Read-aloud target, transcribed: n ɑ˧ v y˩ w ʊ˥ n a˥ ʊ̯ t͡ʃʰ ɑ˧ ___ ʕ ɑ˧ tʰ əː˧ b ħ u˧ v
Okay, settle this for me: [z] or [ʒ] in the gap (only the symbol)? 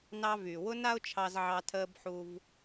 z